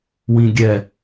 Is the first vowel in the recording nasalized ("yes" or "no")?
yes